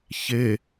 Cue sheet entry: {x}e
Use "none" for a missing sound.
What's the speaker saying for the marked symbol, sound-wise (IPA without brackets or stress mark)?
ç